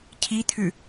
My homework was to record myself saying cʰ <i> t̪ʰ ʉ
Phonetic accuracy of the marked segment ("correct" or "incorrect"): correct